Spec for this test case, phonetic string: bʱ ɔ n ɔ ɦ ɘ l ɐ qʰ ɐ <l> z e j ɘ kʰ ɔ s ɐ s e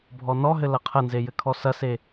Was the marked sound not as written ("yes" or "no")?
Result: yes